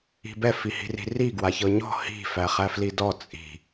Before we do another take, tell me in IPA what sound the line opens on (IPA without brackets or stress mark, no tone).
i̤